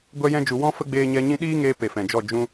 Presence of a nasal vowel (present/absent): present